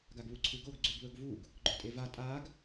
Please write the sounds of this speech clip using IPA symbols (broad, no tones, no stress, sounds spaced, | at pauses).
ɡ a ɡ β u ǀʰ ʉ ɡ o ɡ ɡ͡ǀ ʉ ɡ β ɵ ɡ v u ɡ | ɡ͡ǃ ɵ tʼ e v a tʼ a ɡ